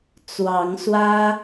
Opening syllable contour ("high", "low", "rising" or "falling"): rising